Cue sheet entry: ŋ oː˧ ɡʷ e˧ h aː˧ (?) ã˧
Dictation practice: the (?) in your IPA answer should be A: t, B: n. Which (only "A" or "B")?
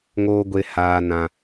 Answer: B